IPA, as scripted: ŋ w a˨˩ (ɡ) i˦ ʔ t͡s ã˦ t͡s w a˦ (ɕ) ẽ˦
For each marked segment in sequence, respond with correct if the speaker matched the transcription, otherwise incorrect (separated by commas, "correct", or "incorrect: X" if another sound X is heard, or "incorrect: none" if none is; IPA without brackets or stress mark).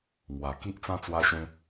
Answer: incorrect: k, correct